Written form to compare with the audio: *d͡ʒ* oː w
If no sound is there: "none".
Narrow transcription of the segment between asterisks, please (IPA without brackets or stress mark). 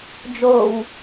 d͡ʒ